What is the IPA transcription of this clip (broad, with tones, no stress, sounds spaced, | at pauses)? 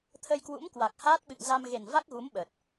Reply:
t̪ʰ ə˧ j k w ṵ˧˥ m k w a˨˩ k̚ h aː˦˥ t̚ ɓ ɨ̰˧˨ ŋ z a˧ m ɣ e˨˩ n v a˦˥ k̚ ɣ u˨˦ m ɓ ə˨˩ t̚